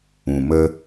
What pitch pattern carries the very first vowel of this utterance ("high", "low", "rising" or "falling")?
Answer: low